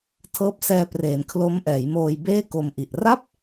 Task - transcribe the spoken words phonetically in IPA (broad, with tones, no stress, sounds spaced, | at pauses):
tʰ ɤː˦˥ p̚ s ɛː˧ p r eː˩˦ n kʰ l o˦˥ m ʔ ɛː˩˦ j m oː˧ j b eː˥˩ k o˧ m ʔ i˨˩ ʔ r a˥˩ p̚